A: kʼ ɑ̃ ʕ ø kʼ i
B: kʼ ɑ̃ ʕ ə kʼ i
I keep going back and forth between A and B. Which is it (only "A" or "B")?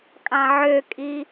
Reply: A